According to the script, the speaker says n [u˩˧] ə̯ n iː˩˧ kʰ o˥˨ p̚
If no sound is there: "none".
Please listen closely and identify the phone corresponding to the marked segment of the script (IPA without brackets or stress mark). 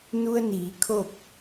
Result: u˧